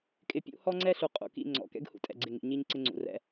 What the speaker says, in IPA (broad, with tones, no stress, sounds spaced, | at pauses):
kʼ ɪ˨ pʲ ṵ˦ h ɔ˦ ŋ͡ǀ ɛ˦ ɬ u˨ qʼ ṵ˨ k ḭ˦˨ ŋ͡ǀ ɔ̰˨ k ɛ̰˦ ɡ h ṵ˦ tʼ ɛ̰˦˨ ɡ͡ǀ ɪ˦˨ ŋ ḭ˨ ɲ i˦ ɲ ǀ ɪ˦ ŋ͡ǀ ṵ˨ r ɛ̰˦